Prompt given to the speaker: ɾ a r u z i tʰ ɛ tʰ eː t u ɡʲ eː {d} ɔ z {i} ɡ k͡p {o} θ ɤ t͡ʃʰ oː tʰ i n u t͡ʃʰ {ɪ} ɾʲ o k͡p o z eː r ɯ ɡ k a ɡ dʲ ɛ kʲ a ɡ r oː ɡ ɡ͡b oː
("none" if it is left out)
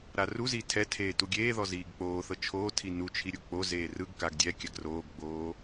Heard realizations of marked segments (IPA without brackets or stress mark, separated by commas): ð, iː, oː, i